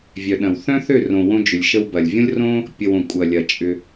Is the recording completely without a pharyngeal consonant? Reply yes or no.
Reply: yes